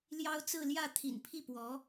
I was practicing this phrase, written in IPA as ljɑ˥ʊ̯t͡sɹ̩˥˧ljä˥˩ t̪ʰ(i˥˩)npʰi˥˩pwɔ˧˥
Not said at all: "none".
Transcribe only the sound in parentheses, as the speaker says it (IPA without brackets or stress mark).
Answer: ḭ˨˩